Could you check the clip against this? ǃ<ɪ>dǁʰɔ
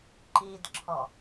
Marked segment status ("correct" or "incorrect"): incorrect